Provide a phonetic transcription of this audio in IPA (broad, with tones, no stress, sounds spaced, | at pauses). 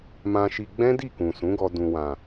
m ã˧ ʃ i˧ ɡ͡b ɛ̃˦ d i˦˨ k ũ˨ s ũ˨˦ ɡ ɔ˧ d ũ˨ w ã˨